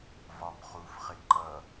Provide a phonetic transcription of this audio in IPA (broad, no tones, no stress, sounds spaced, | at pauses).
v ɒ m χ u f χ ɪ ǃ ʌ